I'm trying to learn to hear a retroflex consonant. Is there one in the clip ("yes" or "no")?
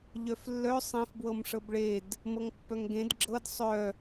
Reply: yes